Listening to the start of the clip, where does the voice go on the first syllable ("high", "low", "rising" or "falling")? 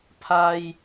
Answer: high